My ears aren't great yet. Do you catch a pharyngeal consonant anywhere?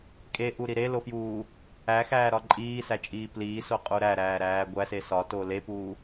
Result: no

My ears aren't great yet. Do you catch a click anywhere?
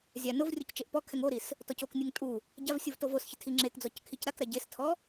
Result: yes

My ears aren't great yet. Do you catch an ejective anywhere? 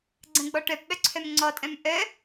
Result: yes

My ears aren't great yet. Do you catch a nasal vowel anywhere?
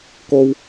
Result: no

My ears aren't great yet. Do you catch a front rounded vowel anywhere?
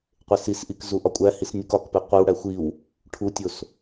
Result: no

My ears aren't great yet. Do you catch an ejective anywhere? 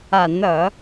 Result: no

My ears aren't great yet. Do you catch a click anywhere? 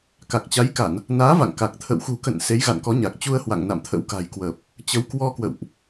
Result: no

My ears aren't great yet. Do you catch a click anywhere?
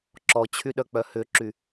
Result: yes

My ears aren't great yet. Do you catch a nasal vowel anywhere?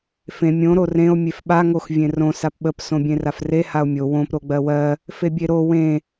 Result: yes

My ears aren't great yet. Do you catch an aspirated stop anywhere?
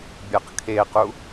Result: yes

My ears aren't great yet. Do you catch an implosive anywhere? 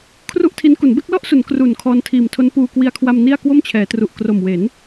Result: no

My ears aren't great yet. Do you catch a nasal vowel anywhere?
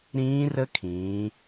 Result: yes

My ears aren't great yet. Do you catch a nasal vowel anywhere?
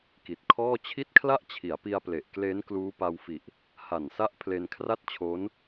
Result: no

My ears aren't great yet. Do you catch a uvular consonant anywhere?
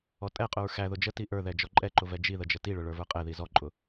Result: yes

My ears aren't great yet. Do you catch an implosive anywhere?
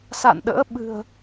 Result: yes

